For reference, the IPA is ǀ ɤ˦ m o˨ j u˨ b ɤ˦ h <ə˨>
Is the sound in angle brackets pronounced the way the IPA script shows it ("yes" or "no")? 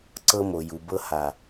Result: no